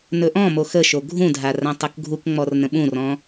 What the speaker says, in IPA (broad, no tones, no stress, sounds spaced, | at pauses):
n ɵ ʔ ɔ̃ m o x ə ʃ o ɡʱ ũ dʱ a r ã tˤ o k ɡʱ u k ŋ͡m ɔ r n ə̃ ɓ ũ r ɔ̃